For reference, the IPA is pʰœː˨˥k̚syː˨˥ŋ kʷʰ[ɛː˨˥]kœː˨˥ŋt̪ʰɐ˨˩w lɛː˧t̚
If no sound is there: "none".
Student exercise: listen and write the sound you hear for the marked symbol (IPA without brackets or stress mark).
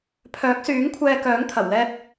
ɛː˧